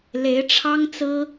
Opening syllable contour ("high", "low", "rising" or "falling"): rising